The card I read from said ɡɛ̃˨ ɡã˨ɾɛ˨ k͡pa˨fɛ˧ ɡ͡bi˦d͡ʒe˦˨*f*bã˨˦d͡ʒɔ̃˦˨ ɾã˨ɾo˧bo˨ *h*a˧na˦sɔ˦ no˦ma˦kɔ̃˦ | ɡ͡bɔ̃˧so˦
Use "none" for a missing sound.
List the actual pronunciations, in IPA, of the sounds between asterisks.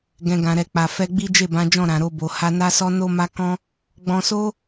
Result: none, h

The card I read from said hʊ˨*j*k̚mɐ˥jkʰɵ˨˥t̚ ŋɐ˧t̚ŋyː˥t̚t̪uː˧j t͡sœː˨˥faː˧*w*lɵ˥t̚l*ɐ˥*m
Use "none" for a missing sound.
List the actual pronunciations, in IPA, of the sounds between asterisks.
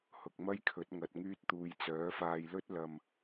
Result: none, j, ɐ˧

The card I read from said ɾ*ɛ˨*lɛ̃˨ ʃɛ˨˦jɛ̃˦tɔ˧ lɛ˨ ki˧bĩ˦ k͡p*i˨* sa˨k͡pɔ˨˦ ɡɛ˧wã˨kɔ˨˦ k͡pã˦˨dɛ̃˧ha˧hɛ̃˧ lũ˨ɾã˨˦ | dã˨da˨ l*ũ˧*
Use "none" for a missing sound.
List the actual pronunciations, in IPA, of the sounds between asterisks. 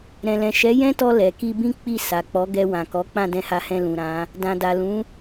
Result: ɛ̃˨, i˦˨, ũ˨˦

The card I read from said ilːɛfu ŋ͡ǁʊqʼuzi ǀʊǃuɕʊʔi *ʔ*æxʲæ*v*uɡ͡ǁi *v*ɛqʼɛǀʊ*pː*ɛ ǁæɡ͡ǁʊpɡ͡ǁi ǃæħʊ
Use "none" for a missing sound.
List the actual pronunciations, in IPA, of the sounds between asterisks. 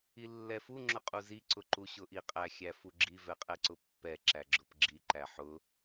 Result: qʼ, f, v, pː

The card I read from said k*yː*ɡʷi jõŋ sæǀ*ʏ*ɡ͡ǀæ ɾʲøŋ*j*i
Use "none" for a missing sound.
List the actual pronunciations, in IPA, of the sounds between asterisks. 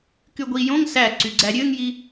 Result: y, y, j

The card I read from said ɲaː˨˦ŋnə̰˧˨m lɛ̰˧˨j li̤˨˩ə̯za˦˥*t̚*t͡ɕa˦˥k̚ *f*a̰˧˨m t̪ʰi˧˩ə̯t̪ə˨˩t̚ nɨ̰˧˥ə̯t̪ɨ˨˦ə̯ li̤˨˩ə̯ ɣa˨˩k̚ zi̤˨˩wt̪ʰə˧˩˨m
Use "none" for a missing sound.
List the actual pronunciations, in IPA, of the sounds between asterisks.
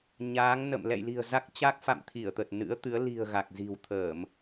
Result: k̚, f

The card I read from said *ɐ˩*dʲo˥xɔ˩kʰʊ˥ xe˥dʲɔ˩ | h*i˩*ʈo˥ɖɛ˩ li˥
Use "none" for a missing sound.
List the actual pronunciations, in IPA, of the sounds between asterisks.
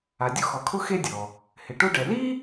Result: a˩, ɪ˩

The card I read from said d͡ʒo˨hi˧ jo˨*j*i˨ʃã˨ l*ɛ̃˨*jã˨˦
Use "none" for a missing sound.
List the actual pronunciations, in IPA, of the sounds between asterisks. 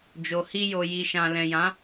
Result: j, ɛ̃˨

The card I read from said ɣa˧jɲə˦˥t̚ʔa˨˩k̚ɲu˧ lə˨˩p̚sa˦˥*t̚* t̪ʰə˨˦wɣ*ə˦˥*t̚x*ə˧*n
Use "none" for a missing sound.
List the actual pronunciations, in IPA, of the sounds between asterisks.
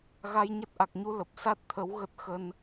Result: t̚, ə˦˥, ə˧

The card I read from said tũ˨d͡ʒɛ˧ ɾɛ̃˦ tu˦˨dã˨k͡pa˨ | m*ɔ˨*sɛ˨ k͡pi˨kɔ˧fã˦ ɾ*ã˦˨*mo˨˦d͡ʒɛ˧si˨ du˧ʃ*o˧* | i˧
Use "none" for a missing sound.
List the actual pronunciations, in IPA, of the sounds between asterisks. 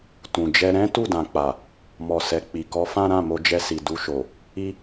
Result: ɔ˨, ã˦˨, o˨

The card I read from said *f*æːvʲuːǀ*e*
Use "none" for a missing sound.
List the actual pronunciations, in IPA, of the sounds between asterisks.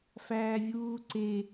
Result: f, e

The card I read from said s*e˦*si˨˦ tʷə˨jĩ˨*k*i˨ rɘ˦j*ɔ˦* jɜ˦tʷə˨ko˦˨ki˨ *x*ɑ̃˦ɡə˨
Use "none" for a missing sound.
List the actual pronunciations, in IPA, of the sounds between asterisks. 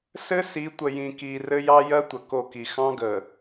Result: ɘ˦, k, ɑ˦, x

